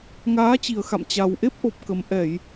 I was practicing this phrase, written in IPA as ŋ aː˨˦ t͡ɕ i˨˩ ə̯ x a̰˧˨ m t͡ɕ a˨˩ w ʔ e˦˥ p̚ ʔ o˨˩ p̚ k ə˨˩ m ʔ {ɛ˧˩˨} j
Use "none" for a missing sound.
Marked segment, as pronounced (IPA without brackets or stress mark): ɛ˧˩˨